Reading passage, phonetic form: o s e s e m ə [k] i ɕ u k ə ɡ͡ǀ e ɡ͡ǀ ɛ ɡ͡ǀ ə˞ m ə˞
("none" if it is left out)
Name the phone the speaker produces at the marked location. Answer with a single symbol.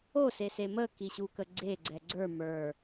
k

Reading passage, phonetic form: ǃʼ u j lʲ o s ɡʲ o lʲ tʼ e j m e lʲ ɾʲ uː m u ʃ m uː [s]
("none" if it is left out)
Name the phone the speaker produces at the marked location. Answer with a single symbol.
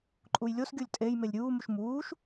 ʃ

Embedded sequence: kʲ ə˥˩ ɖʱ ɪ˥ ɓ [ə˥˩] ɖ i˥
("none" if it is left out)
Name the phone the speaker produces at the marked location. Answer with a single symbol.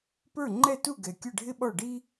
ɔ˥˩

